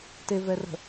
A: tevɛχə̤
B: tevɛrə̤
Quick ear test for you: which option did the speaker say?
B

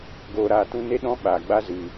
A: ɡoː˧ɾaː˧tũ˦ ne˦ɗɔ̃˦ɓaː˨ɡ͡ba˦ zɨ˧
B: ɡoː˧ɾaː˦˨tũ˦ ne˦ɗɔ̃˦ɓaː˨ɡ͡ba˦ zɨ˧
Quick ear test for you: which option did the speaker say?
A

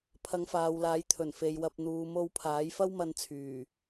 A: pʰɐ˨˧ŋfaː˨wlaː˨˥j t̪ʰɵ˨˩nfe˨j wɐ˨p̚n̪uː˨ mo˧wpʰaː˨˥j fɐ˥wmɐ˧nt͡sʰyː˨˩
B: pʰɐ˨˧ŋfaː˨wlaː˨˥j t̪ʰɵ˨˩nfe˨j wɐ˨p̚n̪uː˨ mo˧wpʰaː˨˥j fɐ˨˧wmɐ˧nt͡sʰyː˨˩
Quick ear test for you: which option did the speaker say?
A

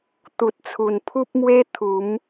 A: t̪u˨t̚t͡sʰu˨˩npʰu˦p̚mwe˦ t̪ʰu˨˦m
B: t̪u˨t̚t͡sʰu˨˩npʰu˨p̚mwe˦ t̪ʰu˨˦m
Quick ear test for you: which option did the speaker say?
A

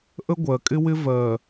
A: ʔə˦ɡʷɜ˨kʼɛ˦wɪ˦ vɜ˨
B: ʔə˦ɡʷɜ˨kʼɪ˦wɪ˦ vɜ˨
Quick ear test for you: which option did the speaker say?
B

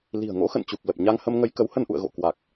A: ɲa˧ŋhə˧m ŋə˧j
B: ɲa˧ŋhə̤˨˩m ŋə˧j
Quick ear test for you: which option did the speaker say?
A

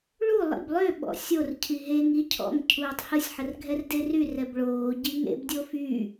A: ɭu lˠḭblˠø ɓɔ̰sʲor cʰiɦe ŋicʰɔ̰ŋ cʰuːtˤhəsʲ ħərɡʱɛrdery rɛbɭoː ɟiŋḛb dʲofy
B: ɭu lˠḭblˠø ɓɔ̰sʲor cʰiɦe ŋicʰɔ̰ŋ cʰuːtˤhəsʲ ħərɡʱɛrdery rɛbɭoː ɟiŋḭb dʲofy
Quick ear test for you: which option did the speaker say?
A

